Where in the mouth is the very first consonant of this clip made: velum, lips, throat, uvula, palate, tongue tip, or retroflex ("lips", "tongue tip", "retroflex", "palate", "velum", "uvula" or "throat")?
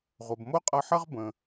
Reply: uvula